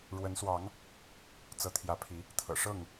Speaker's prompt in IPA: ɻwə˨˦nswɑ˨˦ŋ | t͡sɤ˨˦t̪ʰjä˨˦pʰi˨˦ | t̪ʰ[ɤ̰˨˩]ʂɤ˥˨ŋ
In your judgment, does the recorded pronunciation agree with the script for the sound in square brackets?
yes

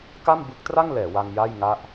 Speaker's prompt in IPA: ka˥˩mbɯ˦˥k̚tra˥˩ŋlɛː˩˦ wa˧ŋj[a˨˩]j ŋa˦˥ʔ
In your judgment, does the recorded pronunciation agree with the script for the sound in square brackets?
no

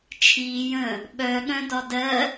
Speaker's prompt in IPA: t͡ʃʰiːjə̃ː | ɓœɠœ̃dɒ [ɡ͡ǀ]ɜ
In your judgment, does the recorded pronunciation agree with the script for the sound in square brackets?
no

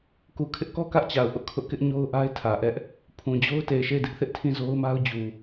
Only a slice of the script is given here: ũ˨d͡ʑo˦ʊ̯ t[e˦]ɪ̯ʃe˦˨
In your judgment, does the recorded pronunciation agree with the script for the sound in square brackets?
no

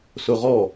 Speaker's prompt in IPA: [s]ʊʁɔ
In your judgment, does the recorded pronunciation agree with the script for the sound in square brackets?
yes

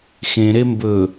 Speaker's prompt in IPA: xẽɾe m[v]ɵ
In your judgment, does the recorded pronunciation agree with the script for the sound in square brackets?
no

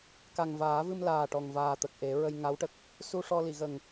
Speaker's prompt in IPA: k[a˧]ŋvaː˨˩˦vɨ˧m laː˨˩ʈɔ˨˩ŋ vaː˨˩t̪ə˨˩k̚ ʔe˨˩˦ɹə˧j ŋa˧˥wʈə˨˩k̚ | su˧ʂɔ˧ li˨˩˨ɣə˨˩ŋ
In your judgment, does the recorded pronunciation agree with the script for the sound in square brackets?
no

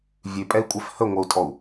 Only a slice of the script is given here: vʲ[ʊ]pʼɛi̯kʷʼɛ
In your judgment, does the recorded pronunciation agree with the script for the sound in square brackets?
no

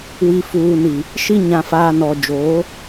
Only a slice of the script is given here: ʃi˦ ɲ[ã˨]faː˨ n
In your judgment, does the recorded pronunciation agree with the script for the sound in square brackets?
yes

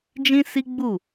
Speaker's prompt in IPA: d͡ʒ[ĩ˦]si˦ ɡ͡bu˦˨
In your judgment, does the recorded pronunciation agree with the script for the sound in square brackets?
yes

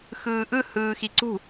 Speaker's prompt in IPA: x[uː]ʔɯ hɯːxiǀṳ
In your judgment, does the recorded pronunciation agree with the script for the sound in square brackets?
no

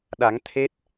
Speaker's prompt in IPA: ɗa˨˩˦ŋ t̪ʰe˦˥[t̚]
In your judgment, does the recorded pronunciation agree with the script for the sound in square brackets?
yes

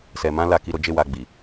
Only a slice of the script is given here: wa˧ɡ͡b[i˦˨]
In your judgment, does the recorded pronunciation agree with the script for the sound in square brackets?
no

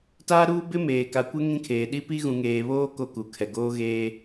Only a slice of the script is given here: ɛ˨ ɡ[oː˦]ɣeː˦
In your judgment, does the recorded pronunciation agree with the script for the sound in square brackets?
yes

